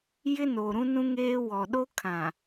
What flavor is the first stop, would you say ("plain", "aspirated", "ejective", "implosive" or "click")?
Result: implosive